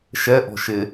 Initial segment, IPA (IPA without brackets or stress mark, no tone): ʃ